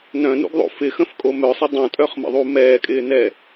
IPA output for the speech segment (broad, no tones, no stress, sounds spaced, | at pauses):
n œ̃ n ṵ ɡ ðˤ o̰ f ɪ x ə̃ f kʼ o m œ sˤ ɪ dˤ õ tʼ œ χ m ə̰ ðˤ u m ɛː kʼ ɪː n ɛ